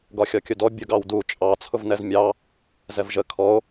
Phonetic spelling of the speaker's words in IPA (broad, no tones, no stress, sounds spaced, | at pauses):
ɡ ɒ xʲ ɒ kʲ ʊ d ɔ bʲ ʊ ɡ ɑ w d u t͡ʃʼ ɑ t͡sʰ ʊ v n ɛ z mʲ ɑ | z ɛ v ʒ ə kʰ ɔ o̯